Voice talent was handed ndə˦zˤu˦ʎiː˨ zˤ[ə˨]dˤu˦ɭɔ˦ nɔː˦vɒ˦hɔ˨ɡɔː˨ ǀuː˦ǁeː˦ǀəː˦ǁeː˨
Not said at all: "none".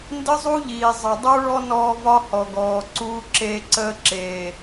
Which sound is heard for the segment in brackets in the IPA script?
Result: ə˨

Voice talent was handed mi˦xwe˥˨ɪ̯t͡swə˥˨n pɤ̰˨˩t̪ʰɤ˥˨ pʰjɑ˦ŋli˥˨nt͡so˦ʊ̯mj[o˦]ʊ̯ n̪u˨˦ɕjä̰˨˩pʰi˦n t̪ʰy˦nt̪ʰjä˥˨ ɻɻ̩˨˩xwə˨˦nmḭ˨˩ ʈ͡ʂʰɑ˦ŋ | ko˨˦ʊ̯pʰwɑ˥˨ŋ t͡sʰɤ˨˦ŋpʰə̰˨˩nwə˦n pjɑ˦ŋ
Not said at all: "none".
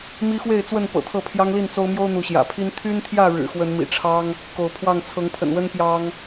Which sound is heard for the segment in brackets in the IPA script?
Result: o˦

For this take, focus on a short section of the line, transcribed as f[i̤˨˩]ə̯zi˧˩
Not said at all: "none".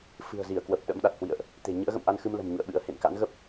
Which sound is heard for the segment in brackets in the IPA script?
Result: ɨ̤˨˩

